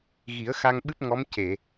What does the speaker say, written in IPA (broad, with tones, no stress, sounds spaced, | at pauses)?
ɣ i˨˩˦ ə̯ x a˧ ŋ ɓ ɨ˦˥ p̚ ŋ ɔ˧˥ m c e˨˩˨